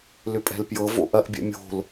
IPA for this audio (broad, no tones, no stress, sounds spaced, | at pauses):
l ʏ pʼ ɛ̤ l p j ɤ v o̰ ʔ ɐ ʔ bʲ ɛ̰ mʲ o̤ l